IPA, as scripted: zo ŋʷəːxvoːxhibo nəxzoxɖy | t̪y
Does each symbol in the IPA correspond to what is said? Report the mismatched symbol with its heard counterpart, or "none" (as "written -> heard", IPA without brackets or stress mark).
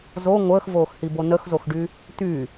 none